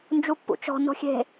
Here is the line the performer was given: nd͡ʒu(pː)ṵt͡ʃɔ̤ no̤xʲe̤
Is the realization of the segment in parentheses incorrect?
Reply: no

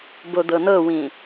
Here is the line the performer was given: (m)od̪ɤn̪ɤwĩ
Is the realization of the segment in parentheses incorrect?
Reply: yes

